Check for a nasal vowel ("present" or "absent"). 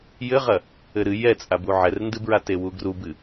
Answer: absent